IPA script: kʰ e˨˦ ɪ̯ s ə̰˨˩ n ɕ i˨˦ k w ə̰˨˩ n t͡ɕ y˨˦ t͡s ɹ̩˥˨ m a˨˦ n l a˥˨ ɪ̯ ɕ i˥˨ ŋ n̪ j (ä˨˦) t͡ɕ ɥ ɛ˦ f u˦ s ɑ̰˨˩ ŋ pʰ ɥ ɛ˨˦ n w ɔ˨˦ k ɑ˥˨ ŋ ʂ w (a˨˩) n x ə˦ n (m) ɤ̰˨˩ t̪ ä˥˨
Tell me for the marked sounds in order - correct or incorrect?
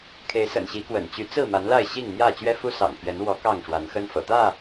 incorrect: ä˥˨, incorrect: a˨˦, incorrect: f

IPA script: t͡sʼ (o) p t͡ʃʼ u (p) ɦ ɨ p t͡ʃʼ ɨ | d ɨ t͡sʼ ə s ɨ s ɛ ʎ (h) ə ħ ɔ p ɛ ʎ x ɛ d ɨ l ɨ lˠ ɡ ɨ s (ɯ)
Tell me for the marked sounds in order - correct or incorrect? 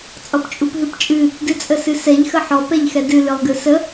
incorrect: ɔ, correct, incorrect: x, incorrect: ə

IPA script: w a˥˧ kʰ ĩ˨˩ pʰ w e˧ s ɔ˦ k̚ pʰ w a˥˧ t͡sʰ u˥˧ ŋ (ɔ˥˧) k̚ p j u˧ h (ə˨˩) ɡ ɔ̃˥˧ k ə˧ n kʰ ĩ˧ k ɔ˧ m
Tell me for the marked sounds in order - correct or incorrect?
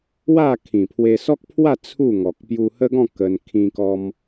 incorrect: ɔ˨, incorrect: ə˦

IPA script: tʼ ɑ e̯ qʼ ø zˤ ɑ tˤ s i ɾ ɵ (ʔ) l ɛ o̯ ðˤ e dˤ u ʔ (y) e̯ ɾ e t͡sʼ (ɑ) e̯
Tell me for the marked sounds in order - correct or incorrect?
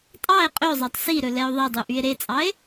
incorrect: none, correct, correct

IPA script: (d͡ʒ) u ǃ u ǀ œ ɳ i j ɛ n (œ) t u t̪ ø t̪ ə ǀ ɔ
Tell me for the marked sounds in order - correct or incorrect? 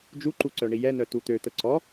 correct, correct

